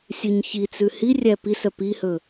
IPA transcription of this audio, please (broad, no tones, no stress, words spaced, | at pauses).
sʲʉɲçit͡sʉ hirʲæ pisœ pihɵ